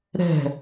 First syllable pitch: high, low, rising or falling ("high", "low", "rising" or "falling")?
falling